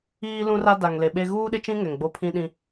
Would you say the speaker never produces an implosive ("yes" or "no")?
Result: no